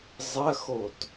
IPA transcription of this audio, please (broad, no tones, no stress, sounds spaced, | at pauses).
zˤ ɐ x o t